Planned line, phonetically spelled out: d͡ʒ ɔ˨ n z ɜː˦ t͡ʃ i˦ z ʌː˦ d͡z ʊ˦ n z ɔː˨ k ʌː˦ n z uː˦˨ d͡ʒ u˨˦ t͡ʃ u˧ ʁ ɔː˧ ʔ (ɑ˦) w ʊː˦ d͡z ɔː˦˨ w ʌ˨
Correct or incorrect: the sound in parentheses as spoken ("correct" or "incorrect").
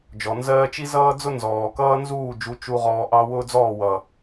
correct